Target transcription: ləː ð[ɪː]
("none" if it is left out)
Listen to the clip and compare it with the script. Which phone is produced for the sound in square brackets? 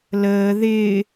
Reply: ɪː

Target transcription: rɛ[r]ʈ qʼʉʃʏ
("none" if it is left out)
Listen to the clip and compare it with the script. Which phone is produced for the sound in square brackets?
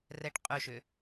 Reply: none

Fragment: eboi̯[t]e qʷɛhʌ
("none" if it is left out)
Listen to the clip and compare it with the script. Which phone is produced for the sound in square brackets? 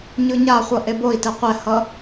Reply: t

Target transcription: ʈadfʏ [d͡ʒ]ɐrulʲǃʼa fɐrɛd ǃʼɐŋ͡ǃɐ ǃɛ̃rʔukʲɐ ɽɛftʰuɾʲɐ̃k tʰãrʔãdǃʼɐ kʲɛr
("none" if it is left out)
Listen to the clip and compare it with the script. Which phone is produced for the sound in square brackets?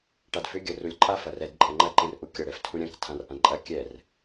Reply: ɡʲ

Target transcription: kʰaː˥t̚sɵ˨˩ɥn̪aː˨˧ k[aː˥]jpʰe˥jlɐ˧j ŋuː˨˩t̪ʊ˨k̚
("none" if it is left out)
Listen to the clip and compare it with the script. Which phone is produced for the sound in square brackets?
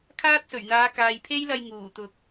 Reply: aː˨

